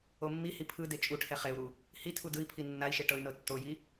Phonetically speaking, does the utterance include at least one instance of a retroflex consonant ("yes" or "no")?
yes